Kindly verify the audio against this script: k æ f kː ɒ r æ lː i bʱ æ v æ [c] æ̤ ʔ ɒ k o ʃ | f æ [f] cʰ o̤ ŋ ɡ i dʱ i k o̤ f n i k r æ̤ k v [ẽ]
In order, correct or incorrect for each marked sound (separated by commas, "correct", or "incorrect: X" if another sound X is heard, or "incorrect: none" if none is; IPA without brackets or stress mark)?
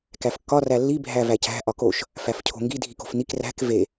correct, correct, incorrect: e